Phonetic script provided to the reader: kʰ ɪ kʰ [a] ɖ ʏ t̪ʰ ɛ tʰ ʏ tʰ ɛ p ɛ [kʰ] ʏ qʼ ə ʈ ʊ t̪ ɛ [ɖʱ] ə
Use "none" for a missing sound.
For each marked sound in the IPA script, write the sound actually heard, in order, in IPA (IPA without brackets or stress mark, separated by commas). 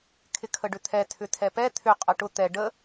ə, t̪ʰ, ɖ